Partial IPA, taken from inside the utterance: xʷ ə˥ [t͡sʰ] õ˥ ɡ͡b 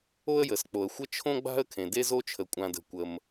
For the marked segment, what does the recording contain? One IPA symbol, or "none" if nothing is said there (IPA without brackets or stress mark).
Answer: t͡ʃʰ